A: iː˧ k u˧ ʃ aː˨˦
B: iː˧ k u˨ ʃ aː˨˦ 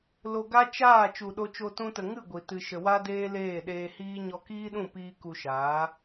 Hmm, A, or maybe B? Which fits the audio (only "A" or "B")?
A